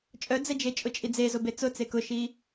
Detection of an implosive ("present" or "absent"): absent